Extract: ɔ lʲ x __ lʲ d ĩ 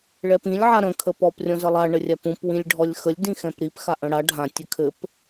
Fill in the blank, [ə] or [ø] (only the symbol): ə